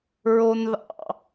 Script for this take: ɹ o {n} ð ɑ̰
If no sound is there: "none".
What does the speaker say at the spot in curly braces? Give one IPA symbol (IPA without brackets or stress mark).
n